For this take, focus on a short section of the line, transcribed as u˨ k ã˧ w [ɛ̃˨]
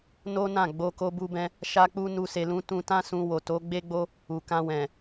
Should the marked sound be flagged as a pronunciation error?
no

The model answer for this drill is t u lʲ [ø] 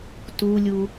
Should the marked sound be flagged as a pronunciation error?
yes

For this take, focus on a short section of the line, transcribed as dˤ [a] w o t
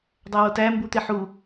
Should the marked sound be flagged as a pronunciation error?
yes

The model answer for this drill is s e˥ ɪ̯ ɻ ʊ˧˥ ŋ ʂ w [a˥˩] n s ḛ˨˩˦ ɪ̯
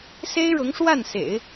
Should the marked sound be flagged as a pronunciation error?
no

